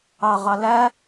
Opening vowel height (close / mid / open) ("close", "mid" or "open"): open